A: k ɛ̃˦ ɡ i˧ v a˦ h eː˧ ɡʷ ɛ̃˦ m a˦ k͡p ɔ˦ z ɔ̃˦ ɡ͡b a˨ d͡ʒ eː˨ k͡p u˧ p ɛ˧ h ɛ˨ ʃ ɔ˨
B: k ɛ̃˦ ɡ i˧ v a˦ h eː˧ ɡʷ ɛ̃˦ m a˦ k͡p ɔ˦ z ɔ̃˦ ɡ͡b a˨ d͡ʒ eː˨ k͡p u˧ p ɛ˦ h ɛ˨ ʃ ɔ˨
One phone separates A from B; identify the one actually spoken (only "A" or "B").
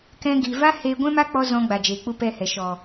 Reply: A